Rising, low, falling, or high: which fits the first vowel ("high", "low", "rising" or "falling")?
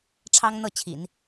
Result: high